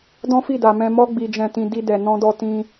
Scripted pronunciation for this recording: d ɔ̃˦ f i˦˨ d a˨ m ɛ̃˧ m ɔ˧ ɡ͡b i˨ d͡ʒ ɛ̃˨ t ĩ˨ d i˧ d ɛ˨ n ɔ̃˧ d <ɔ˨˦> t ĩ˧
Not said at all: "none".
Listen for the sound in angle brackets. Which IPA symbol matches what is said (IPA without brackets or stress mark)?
ɔ˧